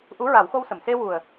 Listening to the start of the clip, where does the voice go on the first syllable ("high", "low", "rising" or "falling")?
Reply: rising